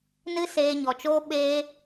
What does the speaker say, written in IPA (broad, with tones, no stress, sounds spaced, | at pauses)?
n ɨ˦ s eː˧ ɲ ɔ˨ t͡ʃ oː˦ ɓ eː˧